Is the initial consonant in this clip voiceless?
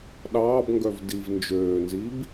no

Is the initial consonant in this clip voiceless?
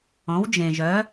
no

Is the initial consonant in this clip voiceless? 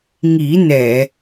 no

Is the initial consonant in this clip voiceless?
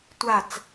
yes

